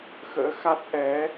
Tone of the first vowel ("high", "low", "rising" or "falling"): rising